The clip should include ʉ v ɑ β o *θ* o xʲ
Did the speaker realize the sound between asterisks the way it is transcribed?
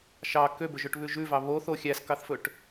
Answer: yes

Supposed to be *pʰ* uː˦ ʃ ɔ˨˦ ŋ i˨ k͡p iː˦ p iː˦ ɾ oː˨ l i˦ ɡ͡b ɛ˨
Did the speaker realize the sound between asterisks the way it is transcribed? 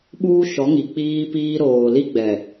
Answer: no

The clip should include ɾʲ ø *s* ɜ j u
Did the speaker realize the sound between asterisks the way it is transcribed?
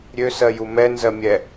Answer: yes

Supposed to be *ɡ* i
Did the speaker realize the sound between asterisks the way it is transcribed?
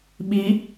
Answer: no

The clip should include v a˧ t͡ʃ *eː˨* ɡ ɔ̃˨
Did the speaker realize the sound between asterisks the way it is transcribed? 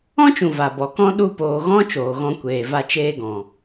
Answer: no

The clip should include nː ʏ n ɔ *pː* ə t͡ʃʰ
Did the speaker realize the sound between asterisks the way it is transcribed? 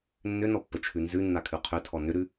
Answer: yes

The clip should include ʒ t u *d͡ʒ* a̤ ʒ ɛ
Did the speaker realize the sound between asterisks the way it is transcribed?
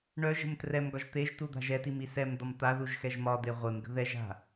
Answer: no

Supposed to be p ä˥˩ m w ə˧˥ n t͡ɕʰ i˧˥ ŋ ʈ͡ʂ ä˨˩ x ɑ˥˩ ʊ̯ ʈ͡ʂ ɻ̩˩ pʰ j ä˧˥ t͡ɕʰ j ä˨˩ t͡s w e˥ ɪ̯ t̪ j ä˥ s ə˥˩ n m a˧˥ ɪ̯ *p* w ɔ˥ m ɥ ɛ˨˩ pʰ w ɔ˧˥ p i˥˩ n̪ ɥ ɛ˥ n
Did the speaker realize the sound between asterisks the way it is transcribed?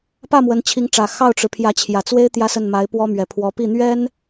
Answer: yes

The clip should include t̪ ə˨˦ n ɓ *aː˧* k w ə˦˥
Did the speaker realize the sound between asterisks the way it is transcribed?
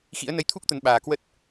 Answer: no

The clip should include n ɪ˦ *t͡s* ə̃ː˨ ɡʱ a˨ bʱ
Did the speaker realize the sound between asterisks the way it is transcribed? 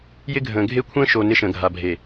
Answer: no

